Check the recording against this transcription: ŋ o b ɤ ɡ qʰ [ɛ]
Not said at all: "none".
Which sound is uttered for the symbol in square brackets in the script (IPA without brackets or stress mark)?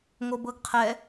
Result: ɛ